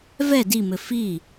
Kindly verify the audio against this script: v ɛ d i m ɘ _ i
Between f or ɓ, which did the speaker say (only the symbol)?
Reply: f